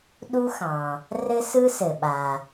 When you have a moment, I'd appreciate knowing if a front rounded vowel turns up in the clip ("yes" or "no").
no